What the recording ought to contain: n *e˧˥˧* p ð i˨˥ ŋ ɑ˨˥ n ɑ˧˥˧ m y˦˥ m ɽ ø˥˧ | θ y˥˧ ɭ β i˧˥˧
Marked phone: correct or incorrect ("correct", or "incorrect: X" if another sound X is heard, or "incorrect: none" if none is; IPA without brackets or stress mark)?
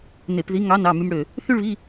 incorrect: e˧˩˧